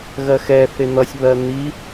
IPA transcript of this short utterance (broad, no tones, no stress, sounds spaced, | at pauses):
ɣ ɜ x ɛ θ ɪ n̪ ʌ sʲ β ɜ n̪ i